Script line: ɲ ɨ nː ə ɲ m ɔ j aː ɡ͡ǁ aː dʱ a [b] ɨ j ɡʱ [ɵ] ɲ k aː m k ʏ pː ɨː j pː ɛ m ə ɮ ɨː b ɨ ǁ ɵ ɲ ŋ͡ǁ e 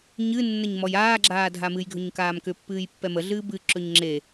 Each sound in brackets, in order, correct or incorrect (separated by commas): incorrect, correct